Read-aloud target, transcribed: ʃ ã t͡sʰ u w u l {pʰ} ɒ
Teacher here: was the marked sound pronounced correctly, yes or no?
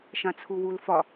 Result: no